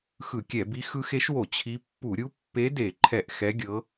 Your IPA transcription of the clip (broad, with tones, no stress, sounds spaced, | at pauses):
x ɯ˧˩˧ kʲ ɛ˧˩˧ b i˧˥ x ɯ˧˥ x e˧˥ ʃ w o˧˩˧ t͡ɕʰ i˧˥ pː u˧˩˧ ɾʲ u˧˥ pː e˧˥ d e˧˩˧ ǃʰ ɛ˧˩˧ ʔ x ɛ˧˥ ɡʲ ɤ˧˥